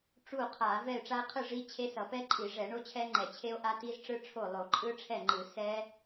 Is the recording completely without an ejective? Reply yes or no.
no